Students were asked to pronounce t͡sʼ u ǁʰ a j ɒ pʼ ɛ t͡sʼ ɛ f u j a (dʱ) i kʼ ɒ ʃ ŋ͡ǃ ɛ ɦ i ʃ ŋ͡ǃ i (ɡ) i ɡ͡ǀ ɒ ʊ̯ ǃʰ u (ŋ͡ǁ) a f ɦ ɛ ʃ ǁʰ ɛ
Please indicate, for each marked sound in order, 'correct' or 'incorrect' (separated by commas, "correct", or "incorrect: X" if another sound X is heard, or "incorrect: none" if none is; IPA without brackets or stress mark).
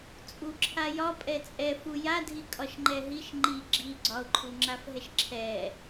correct, incorrect: ɡ͡ǁ, correct